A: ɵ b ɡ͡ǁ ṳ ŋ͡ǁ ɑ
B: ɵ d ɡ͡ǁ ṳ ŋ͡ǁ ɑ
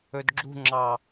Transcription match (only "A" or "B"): B